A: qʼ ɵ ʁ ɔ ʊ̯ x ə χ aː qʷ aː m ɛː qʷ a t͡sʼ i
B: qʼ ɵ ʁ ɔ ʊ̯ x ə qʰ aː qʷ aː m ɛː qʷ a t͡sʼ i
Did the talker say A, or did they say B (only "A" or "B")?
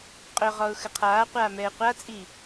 B